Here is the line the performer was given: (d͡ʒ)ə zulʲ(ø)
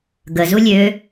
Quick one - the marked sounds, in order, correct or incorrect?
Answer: incorrect: ɡ, correct

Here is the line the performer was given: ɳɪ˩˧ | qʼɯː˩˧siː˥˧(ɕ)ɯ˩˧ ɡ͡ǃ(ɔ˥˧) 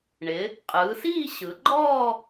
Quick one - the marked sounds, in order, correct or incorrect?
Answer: correct, incorrect: ɔː˥˧

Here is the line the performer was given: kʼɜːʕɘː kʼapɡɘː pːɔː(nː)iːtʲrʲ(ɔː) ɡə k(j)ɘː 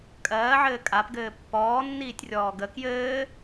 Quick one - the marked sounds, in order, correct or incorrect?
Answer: correct, correct, correct

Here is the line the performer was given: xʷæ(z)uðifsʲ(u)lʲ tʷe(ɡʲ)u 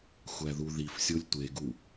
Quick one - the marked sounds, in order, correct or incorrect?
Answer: incorrect: ð, incorrect: o, incorrect: ɡ

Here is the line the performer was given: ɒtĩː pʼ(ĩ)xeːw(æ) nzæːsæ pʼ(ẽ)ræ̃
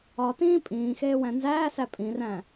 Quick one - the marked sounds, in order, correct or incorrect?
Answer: incorrect: ĩː, incorrect: æ̃, incorrect: ĩ

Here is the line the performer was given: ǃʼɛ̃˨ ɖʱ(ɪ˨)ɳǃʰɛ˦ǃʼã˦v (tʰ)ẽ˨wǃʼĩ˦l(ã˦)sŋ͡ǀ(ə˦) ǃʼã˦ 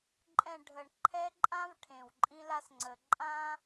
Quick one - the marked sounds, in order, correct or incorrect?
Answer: incorrect: ə˨, incorrect: ʈʰ, incorrect: a˦, incorrect: ə˨

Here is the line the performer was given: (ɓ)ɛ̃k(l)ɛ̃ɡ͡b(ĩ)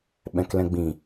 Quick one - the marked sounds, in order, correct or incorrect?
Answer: correct, correct, correct

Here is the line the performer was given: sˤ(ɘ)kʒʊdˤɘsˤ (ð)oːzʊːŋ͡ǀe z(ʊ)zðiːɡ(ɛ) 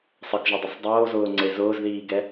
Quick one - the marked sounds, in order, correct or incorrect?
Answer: correct, incorrect: dˤ, incorrect: ʊː, correct

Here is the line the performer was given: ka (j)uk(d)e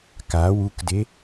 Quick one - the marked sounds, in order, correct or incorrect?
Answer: incorrect: w, correct

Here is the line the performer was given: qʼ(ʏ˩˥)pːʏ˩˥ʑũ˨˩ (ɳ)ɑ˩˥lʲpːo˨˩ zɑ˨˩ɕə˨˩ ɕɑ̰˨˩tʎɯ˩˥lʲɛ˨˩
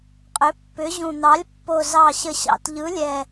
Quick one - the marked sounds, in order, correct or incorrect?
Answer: correct, incorrect: n̪

